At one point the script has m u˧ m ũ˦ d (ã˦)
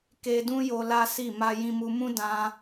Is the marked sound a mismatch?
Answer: no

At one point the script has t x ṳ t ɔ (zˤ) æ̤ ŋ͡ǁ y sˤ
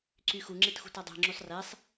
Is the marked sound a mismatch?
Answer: yes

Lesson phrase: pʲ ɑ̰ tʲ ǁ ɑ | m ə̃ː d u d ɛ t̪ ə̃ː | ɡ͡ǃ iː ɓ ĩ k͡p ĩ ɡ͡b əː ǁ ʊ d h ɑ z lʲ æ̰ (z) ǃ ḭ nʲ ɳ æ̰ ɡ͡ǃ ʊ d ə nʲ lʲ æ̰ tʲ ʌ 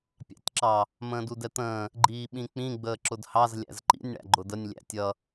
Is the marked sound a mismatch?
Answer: no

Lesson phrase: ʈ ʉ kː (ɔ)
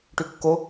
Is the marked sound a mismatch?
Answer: yes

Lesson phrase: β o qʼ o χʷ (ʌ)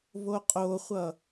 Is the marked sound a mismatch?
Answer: no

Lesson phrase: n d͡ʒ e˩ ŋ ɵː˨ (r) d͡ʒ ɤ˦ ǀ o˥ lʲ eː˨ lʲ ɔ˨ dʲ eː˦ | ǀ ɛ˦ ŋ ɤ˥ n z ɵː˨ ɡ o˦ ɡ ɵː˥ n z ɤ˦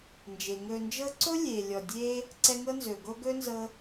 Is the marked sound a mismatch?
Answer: yes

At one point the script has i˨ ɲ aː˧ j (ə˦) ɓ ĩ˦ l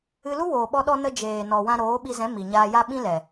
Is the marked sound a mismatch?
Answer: yes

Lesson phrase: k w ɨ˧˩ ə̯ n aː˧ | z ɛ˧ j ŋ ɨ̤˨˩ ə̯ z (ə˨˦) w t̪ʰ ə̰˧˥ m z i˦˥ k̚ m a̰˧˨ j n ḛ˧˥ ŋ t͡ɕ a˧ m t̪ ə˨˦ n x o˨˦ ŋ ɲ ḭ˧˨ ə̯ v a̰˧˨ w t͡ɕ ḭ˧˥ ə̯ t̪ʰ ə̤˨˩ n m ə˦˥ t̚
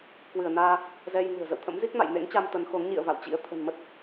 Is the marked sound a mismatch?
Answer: yes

